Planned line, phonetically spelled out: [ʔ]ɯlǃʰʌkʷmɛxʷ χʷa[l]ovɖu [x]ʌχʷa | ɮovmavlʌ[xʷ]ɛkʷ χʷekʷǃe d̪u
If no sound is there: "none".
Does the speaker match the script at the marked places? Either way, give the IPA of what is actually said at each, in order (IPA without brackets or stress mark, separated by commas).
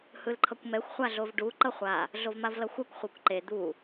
h, ɮ, ǃ, xʷ